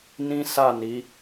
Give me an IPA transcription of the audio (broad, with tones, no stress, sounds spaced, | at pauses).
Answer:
n ĩ˦ s a˦˨ n i˨˦